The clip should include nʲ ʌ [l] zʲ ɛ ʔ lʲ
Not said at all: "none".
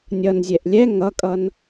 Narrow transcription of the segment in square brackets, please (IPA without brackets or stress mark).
n